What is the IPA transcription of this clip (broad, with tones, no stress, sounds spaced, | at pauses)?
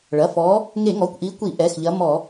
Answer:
ɭ ɐ˩˧˩ f ɔ˨˦ | ŋ e˧˩˧ ŋ ɔ˩˧˩ kʷ ʔ i˨˦ kʷ i˧˩˧ ʔ ɛ˩˧˩ x ʎ ɐ˨˦ m ɔ˧˩˧